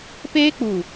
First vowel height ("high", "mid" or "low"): mid